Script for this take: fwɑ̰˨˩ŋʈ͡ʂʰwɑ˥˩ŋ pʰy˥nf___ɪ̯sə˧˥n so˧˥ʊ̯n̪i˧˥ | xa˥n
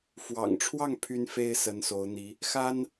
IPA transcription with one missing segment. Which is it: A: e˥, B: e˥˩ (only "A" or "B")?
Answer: A